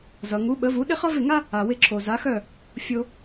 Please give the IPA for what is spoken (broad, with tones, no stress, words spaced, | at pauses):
zʌ˩ŋu˩˥ɓə˩˥vu˩˥ ɗɪ˥χʌ˥vɪ˥˩ŋa˥ | a˩wɪ˥˩ǁʰo˩ za˩˥xœ˥˩ | fʲo˧